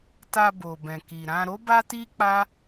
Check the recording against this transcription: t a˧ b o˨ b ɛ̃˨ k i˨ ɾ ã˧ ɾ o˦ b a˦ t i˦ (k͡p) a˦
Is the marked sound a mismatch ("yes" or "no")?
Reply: no